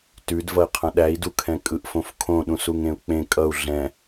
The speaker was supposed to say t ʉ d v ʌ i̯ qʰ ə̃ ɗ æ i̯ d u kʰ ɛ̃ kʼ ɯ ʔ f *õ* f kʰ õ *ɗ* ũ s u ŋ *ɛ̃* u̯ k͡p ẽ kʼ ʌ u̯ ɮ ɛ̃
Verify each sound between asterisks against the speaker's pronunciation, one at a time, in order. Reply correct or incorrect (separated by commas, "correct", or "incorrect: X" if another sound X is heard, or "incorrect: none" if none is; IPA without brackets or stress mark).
correct, correct, incorrect: ẽ